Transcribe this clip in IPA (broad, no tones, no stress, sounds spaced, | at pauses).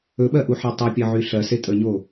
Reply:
ɵ ɓ ɜ ʔ u ħ e tˤ o pʲ ɜ ʕ y ɬ ɜ s e tʼ ə ɲ o